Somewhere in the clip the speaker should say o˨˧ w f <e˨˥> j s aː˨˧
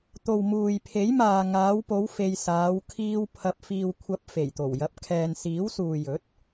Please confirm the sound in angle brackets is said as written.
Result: no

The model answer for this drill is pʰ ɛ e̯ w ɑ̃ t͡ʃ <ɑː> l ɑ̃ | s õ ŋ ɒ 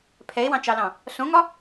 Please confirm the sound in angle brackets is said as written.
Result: no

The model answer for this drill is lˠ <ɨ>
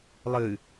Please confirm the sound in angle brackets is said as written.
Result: yes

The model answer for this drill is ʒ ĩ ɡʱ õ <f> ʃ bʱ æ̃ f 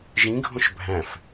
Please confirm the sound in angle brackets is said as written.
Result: no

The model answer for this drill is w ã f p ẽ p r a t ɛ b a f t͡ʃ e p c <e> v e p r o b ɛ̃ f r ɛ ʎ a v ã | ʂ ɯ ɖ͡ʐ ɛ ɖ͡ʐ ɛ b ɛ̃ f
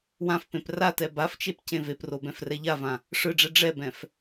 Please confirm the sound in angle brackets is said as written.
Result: no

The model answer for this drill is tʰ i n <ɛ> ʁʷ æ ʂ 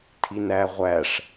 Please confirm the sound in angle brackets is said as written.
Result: no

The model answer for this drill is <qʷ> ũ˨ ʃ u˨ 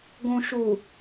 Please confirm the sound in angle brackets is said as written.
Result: no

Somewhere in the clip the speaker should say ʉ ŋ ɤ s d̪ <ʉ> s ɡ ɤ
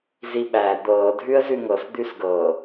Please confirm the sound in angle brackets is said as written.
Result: yes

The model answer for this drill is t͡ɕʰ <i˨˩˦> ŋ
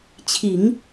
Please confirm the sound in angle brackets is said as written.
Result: yes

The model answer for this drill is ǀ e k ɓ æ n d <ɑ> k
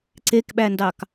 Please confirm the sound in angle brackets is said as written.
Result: yes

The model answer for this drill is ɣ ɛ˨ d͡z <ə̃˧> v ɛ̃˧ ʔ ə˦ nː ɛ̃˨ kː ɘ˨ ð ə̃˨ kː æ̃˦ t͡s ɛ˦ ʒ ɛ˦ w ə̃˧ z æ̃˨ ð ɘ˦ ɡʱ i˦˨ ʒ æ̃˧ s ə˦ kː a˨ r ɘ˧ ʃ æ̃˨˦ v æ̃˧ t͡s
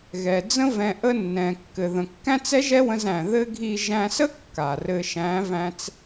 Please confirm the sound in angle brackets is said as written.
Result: no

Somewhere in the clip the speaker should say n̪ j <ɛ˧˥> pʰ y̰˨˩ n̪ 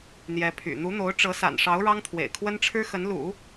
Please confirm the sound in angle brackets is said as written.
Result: yes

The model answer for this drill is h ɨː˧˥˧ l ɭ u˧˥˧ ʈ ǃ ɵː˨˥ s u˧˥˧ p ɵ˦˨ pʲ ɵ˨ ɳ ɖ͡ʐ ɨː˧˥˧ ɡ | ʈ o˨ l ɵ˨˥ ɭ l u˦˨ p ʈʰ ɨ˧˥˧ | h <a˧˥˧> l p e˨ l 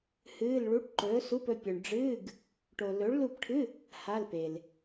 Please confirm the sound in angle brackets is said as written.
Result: yes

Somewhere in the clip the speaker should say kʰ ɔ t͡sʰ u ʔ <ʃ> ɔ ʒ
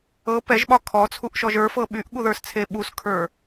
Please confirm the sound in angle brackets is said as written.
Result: yes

